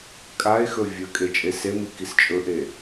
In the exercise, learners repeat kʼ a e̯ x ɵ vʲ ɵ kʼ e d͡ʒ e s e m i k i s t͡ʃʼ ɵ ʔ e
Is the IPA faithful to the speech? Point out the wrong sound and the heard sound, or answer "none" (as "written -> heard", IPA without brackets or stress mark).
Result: d͡ʒ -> t͡ʃʼ